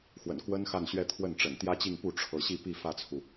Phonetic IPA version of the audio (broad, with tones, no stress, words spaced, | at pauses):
xwə̰˨˩nkwə˥n xa˥˧nɕɥɛ˥˧ t̪ʰwə˥˩nʈ͡ʂə̰˨˩n t̪jä˥t͡ɕi˥˧ŋpu˥˩ ʈ͡ʂʰɤ˧˥ ɕi˥˧pi˥˧ fä˥˩t͡sʰu˩